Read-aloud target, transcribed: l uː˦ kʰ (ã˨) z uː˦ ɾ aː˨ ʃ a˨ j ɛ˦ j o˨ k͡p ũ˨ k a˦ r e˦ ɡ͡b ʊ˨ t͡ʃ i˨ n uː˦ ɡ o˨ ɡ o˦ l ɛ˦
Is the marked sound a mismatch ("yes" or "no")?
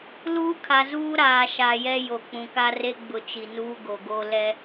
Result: yes